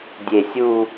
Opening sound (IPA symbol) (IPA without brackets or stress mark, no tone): dʲ